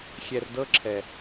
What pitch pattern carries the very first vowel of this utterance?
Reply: low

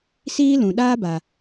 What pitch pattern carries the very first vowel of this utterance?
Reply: high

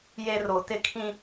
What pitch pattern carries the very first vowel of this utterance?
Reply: low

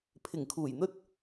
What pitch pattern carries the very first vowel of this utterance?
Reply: low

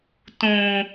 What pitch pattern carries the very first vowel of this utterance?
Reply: low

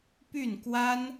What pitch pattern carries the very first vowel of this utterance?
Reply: falling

